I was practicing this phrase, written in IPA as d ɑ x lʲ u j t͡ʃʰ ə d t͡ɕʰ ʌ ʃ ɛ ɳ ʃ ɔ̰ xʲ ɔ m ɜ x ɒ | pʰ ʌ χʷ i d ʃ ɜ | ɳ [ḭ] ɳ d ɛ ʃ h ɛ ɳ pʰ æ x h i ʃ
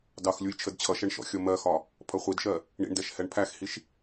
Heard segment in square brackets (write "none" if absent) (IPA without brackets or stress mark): ḭ